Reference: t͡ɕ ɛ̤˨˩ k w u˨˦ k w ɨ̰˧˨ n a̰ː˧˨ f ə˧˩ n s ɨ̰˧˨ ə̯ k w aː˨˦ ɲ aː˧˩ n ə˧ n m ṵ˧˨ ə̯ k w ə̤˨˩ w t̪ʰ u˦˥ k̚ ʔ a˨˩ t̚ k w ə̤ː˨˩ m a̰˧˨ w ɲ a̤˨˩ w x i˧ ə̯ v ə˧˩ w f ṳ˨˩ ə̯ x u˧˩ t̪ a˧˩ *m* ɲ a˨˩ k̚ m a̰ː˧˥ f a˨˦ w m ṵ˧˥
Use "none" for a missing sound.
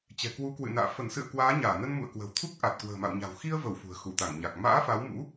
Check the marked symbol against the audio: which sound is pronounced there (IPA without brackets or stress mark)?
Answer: ŋ